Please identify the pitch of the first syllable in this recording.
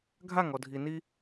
falling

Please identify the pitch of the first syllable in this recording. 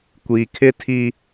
low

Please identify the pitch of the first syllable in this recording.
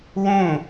falling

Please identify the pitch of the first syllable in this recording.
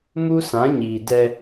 high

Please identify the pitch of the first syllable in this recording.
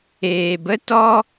low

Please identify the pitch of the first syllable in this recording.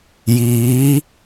rising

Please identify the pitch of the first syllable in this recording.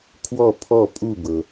falling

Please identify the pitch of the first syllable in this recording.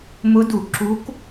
rising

